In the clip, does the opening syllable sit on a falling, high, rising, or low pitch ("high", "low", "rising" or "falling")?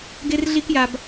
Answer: high